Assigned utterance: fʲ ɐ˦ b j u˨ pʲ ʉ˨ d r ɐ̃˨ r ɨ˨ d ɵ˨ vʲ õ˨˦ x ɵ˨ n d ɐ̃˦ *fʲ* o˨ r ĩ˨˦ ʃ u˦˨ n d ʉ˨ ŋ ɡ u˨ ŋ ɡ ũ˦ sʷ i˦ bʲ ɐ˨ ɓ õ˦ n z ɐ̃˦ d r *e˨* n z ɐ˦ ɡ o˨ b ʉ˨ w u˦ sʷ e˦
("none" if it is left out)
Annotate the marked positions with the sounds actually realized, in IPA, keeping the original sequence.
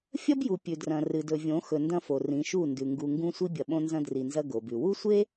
f, i˨

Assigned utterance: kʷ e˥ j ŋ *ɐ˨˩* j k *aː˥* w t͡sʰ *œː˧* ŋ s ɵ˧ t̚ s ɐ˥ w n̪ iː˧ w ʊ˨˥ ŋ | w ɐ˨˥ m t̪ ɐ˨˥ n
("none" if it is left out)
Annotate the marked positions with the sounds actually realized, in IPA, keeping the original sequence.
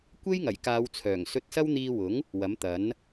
ɐ˨˩, aː˨˧, œː˨˩

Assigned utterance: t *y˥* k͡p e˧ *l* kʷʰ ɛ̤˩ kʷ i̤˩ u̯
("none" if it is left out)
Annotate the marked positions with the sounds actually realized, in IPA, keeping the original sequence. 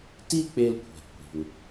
i˥, l

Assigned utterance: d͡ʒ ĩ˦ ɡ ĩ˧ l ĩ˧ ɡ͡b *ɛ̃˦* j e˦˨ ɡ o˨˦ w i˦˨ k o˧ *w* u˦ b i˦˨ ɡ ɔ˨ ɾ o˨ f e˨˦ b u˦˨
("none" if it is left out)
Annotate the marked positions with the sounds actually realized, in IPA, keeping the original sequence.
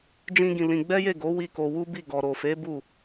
ɛ˦, w

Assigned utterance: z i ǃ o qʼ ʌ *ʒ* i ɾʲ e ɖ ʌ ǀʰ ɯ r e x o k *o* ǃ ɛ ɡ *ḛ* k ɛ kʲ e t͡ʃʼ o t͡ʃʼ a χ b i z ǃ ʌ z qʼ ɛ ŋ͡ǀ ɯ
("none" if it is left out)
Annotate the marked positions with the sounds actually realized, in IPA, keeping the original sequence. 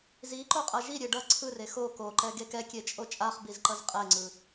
ʒ, o, e

